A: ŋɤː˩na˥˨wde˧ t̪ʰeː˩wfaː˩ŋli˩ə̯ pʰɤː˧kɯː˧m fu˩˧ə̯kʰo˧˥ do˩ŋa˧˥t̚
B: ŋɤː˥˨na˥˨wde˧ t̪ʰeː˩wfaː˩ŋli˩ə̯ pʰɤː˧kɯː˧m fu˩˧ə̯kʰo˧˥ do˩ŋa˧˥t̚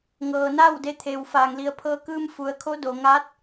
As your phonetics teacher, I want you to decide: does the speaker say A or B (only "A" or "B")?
A